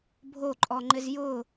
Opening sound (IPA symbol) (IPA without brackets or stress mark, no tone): bʱ